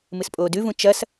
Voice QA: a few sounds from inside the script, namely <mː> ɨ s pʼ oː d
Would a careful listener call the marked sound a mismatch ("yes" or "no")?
yes